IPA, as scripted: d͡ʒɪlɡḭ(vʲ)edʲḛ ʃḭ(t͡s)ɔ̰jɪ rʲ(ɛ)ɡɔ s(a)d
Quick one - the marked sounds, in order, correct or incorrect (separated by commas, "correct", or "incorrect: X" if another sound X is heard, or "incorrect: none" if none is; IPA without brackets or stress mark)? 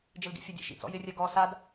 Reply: incorrect: fʲ, correct, correct, correct